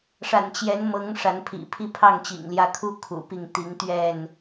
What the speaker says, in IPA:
ʂa̰˨˩nt͡ɕjɛ˨˦nmɤ˨˦ŋ ʂa˨˦npʰḭ˨˩pʰi˦ pʰɑ˥˨ŋt͡ɕḭ˨˩ŋljä˦ kʰu˦ kʰṵ˨˩pi˥˨ŋ t̪i˨˦ŋt̪ɥɛ˥˨n

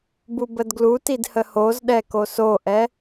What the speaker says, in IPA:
bubədɡlutid həhozɗɛ kosoʔɛ

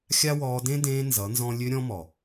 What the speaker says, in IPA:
xʲa˦wɔː˧ dẽ˦dẽː˧ nzʌ˨˦nzɔ̃˦ lʲø˧ ɾʲɔ̃˧mɔ˨

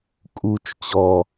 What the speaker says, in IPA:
kʼut͡ʃ t͡ɕɔ

